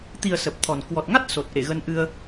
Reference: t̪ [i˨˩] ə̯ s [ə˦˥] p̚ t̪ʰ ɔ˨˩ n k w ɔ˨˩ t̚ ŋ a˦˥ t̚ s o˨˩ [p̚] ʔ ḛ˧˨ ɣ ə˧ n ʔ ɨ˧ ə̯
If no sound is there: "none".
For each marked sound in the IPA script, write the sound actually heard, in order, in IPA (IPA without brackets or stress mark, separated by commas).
i˨˩, ə˨˩, t̚